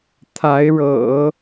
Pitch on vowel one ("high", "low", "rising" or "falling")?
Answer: rising